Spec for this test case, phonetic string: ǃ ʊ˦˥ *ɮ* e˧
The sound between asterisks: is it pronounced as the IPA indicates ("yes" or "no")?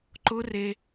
no